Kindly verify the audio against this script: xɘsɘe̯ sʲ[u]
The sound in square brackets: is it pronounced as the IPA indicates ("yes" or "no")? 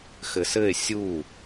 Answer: yes